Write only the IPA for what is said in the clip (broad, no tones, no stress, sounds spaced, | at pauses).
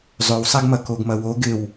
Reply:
zˤ ø w sˤ e ɡ m ɐ k o ɡ m ɐ w o ɡ ɪ w